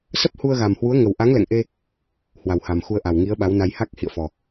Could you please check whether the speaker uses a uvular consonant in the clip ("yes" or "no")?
no